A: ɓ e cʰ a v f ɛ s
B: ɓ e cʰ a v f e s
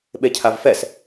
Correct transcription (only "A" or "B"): A